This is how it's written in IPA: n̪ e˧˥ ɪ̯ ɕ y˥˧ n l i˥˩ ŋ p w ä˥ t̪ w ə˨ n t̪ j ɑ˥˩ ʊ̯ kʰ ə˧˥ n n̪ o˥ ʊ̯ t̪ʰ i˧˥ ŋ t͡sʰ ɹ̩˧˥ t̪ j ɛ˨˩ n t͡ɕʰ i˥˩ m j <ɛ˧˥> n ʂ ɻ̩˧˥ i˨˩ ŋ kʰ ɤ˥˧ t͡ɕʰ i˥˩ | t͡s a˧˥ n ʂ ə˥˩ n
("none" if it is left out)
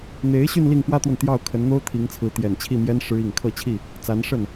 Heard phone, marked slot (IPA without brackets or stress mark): ɛ˥